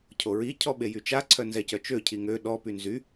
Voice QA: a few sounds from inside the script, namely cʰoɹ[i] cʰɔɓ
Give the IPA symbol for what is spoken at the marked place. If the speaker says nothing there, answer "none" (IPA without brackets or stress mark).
i